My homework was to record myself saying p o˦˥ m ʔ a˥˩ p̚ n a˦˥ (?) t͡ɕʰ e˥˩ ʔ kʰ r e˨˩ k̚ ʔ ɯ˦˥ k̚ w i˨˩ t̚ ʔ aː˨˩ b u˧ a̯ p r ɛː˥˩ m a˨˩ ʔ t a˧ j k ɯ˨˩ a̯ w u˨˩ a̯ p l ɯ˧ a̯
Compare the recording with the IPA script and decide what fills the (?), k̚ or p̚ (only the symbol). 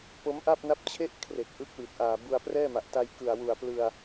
p̚